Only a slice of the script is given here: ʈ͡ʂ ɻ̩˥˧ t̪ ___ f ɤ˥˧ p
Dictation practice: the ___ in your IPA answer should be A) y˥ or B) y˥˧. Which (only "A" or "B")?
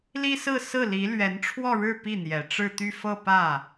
B